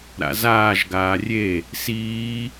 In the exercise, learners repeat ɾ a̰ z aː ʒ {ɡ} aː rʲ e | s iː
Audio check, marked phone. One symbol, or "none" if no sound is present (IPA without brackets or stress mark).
ɡ